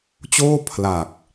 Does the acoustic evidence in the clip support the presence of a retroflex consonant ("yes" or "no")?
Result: no